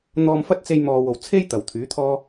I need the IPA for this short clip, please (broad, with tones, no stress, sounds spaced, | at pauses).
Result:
n̪ ɔː˧ m f ɐ˥ t̚ t͡s e˧ j m ɔː˨ w o˨˩ w t͡sʰ e˥ j t̪ ɐ˨˩ w t̪ʰ yː˨˥ t̪ʰ ɔː˥